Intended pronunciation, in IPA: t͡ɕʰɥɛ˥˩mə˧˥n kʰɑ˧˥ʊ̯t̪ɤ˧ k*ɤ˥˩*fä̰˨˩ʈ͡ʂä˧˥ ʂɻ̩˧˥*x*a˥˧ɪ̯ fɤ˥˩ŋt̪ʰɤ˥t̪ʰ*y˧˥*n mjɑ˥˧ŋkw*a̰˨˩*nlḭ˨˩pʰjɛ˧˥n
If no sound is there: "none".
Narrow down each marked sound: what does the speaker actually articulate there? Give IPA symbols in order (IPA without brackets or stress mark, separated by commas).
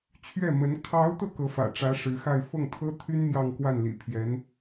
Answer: ɤ˧˥, x, y˥, a˥˩